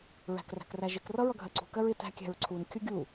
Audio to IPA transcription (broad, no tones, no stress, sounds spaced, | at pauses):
ɹ æ̤ k r æ̤ k r æ ʒ ɪ k r ʌ ɹ ʌ ɡʱ ɜ ǀ ṳ k ɜ ɹ ɪ t æ̤ kʲ æ̤ ɹ ǀʰ u n kʲ ʊ ɡʲ u